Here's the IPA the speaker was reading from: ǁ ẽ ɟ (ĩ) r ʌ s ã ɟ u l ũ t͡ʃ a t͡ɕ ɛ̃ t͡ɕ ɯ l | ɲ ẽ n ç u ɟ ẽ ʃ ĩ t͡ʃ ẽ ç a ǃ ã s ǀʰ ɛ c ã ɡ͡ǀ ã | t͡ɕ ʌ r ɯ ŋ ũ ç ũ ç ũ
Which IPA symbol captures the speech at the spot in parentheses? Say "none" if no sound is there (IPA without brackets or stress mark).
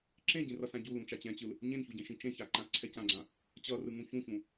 ĩ